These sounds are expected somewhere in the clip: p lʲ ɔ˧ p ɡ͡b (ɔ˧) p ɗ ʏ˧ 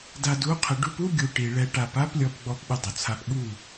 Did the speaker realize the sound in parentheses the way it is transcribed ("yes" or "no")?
yes